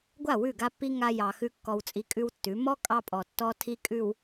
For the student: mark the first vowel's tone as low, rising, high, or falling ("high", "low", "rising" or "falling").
falling